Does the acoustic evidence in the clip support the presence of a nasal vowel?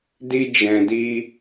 yes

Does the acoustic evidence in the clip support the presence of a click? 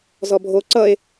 yes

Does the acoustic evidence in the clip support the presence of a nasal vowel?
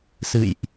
no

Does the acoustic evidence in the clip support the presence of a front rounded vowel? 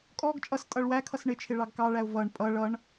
no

